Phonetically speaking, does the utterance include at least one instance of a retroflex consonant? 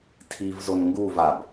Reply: no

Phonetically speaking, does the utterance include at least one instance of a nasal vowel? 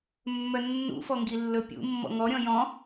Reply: yes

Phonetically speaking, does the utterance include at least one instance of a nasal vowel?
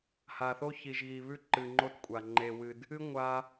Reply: no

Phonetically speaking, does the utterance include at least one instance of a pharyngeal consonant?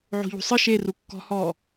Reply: yes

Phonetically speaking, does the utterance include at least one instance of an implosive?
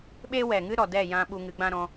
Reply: yes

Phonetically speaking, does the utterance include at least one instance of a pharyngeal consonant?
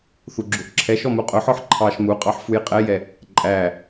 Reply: yes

